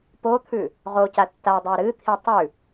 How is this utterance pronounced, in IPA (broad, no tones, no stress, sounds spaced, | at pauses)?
p o t̪ʰ ʉ | ʁ o c a tː a dˤ o ɾ ɨ t̪ʰ i tˤ ʉ